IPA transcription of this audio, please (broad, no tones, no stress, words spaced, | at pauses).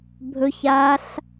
bʱɵç aɬ